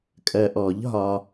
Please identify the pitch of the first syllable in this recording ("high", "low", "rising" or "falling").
low